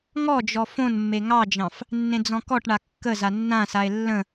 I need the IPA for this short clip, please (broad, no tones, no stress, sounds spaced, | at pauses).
ŋ ɔ d͡ʒ ɔ f õ n mː e ŋ ɑ d͡ʒ ɑ̃ f | nː ẽ d͡z ɔ̃ k ɔ ʈ ɳ a kː ə z a nː ã s a e̯ lː ə̃